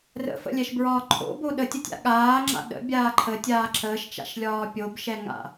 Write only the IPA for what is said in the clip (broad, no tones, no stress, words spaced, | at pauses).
rə̰fə̰lʲɛʃbɹɒː ǃʰo̰bo ɗətʲətʲa̰ ɠaːŋ͡ǁa̰ ɗə̰bʲaː ǃʰətʲaː ǁəːʃt͡ʃa̰ʃlʲɒː pʲobʃɛŋa̰